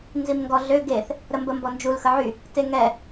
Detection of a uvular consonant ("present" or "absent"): absent